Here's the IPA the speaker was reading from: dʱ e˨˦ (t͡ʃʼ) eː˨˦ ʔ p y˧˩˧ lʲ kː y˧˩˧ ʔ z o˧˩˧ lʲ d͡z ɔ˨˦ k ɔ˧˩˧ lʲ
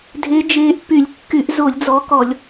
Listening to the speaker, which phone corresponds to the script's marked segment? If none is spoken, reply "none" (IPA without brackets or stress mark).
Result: d͡ʒ